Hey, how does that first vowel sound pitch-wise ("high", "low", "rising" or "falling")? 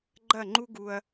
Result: falling